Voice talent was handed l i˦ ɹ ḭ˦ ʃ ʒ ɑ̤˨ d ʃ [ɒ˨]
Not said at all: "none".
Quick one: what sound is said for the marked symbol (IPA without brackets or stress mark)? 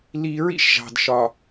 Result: ɒ˨